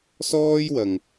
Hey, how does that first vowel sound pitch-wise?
high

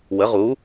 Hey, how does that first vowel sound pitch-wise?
rising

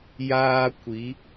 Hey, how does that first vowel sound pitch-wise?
high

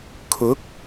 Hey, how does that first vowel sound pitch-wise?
rising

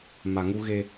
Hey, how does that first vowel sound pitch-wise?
low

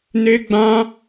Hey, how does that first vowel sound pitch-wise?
high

